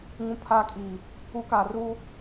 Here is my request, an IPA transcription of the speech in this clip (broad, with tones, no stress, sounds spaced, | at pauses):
ŋ ũ˨ pʰ aː˨ kʼ iː˨ | u˨˦ k aː˨ r uː˦